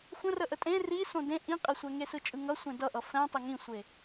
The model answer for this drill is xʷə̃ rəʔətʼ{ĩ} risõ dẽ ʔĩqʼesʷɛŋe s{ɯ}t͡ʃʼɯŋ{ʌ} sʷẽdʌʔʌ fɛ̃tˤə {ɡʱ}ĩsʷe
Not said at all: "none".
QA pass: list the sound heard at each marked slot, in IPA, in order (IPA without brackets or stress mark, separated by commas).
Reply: ẽ, ɯ, ʌ, ŋ